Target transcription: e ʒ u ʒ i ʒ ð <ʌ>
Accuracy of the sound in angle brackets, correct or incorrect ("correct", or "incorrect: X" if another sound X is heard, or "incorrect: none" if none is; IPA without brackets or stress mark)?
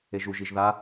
incorrect: a